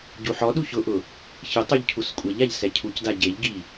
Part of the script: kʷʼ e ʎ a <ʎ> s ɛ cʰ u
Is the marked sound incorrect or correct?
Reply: correct